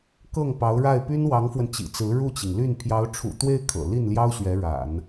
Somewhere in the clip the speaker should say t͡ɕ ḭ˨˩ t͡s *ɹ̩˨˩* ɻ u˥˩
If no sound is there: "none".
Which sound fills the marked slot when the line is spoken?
ɹ̩˧˥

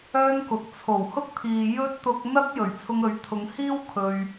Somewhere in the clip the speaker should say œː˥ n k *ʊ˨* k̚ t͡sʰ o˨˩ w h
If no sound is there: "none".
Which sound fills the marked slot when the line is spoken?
ʊ˨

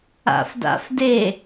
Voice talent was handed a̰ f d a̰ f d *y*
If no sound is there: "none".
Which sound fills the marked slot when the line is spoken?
e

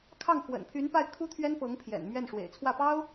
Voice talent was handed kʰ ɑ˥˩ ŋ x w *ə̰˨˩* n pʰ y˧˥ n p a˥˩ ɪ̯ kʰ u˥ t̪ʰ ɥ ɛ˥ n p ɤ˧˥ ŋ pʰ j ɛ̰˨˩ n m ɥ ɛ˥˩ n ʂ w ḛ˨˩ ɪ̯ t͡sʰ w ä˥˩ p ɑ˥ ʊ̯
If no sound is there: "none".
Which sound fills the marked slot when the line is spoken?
ə̰˨˩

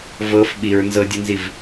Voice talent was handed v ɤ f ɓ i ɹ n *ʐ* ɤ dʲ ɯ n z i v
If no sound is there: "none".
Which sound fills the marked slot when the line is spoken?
z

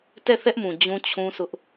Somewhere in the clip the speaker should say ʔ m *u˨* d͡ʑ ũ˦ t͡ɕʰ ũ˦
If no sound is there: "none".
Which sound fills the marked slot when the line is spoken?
ũ˨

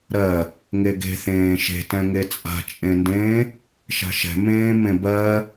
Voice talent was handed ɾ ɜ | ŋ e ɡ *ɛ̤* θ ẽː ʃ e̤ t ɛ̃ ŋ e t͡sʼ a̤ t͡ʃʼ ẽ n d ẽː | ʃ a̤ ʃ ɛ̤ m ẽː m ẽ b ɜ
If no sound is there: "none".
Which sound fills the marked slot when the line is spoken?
e̤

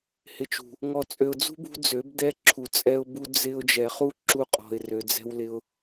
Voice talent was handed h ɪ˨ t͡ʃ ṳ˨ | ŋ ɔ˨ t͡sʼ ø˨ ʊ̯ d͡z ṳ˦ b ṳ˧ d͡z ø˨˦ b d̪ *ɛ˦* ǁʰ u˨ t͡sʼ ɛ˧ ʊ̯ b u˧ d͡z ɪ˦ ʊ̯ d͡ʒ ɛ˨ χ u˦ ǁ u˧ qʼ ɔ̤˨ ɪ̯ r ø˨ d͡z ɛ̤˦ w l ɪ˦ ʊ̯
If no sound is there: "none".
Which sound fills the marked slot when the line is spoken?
ɛ˦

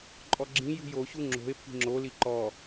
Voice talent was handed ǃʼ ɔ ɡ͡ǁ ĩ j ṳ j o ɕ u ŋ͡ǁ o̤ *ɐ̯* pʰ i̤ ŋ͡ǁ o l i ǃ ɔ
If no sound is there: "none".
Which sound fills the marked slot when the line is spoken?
e̯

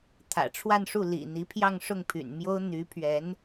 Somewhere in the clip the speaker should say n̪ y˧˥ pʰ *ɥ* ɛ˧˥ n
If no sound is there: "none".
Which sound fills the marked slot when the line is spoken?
ɥ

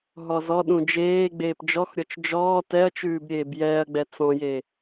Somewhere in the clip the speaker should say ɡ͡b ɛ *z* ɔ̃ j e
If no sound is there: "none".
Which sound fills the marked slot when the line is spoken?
t͡s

